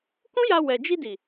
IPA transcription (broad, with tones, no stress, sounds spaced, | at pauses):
k ũ˦ j a˧ w ɛ˨ d͡ʒ i˧ d i˨